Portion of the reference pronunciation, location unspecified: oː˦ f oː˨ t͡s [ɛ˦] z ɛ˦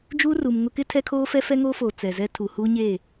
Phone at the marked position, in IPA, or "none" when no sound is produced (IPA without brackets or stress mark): ɛ˨